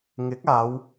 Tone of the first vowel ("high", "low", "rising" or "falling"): rising